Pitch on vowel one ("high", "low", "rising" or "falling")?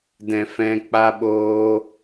low